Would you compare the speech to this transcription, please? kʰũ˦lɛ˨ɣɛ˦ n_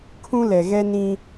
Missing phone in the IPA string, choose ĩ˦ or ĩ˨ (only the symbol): ĩ˦